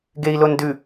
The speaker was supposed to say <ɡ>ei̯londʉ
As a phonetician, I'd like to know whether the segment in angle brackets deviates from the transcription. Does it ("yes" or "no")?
no